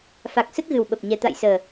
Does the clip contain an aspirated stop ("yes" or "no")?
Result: no